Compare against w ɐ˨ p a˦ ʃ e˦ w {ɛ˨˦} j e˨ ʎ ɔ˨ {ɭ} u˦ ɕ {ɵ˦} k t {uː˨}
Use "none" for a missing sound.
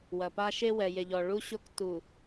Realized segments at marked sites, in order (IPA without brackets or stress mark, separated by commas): ɛ˨, ɭ, o˦, u˨